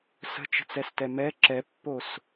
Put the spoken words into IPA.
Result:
s ə̤ t͡ʃ ə̤ t͡s ɛ s t ɛ m ɛ ǁ ɛ pː o s

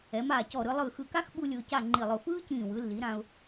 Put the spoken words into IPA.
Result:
ɛ˩˧ m aː˧˩ c ɔ˧˩ ɾ ɯ˧ lˠ ɯ˧˩ x ɯ˧˩ k a˥ x ɓ u˥ lʲ ʊː˧ c a˥˧ ŋ͡ǃ i˧˩ lˠ ʊ˧˩ f ɯː˥ c ĩː˧˩ w ɯ˩˧ lː i˩˧ ɾ ã˧ ʊ̯

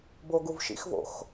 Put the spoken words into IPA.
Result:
b o ɡ u v ʃ ḭ x v o̰ x

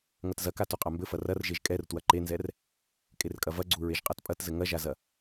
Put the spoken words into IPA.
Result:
ŋ ɐ t z ɐ k a t u qʼ a m b ɘ f ɐ r ɐ r ʒ e ʒ kʼ ɛ r t w ɐ ǃ e n z ɛ r | kʼ e r kʼ ɐ v ɐ ɡ͡ǀ u ɹ e ʒ qʼ a t pʼ ɐ t z ɘ ŋ ɐ ʒ a z ɐ

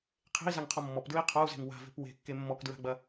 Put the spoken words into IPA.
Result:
qʰ e̤ i̯ z a ŋ qʰ ɔ mː ɔ p d ɹ i qʰ ɔ u̯ z e̤ ŋ w a̤ v e̤ p w e̤ kː e mː ɔ k d ɹ a̤ ɡ͡b ɐ

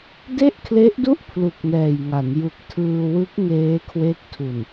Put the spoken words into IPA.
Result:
d e˥˩ ʔ kʰ l e˦˥ ʔ d u˥˩ ʔ pʰ l u˨˩ k̚ n ɛː˨˩ j ŋ a˩˦ n j u˨˩ k̚ tʰ ɯː˧ w ɯ˦˥ k̚ ŋ eː˦˥ kʰ w e˦˥ k̚ tʰ u˨˩ n

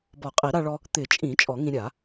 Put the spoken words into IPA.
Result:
b ɔ˨˩˦ qʼ i˨˩˦ ɾ a˧ ɭ ɔ˧ | t̪ ɪ˨˩˦ t͡ʃʼ ĩ˨˩˦ t͡ʃʼ ɔ˨˩˦ ŋ ĩ˧ ɾʲ a˨˩˦

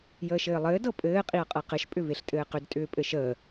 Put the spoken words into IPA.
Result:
j əː ʃ ɘː lˠ ɘː d ɤ pʼ ɘː qʼ i ɐ̯ qʼ ɤ q ɘ ʃ pʼ ʏ v e ɬ tʼ ɘː q ʏ d tʼ ʏː pʼ ɘ ʃ əː

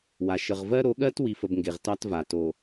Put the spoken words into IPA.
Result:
w a˨ ʃ ə˨ ʁ v ɜ˦ ɾ o˨˦ ɠ ɜ˦ t w i˨ f ə˨ b ŋ ɡ e˨ ʁ t ɑ˦ t v a˨ t o˨

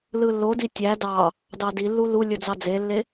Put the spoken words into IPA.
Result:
l ɯ lː o d i tʲ æ d ɑ | d ɑ d i lː u l u lʲ ɯ d͡z ɑ d͡z e lː e

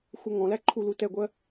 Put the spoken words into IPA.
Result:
xʷ ʌ ŋ ɔ̃ l æ ǃʰ u l u t ɛ ɡʷ ɜ

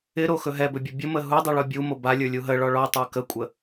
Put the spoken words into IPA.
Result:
ɪ ɾ o x ɵ ɦ ɛ b ɵ bʲ ɵ bʲ ə m ə ɦ u dˤ u ɭ ɔ bʲ u m o b a lʲ ə˞ lʲ u ɦ ə ɭ ɔ ɭ ɔ tˤ ə˞ k ə kʷʼ ə

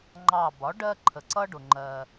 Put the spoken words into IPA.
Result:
ŋ͡ǃ ɑ˧˩ b ɒ˩˥ ɖ ɜ˦ ǃʰ ə˩ ǀ ʌ˦ ɖ ʊ˩ ŋ͡ǃ ɜ˩

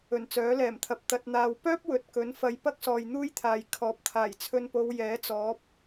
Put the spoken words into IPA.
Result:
ɵ˨˩ n t͡s œː˨˥ l ɛː˨˩ m t̪ʰ ɐ˨ p̚ t̪ ɐ˨ t̚ n̪ aː˨ w p œː˥ p̚ w ɵ˨ t̚ k ɵ˨˥ n f ɐ˨˧ j p ɐ˥ k̚ s ɔː˨ j n̪ uː˥ j t̪ʰ aː˨ j kʰ ɔː˨˥ p̚ t̪ʰ aː˨˩ j t͡sʰ ɵ˧ n p o˨˧ w j ɛː˨˥ t͡s ɔː˨˥ p̚

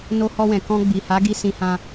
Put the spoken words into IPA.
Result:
n o˧ h ɔ˧ w ɛ̃˨ k ɔ̃˧ ɡ͡b i˨ h a˨˦ ɡ i˧ s ĩ˧ h ã˧

